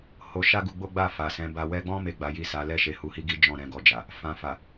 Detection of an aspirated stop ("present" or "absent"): absent